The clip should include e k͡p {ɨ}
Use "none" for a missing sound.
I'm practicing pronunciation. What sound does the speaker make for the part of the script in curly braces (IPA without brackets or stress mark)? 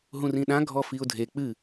ɨ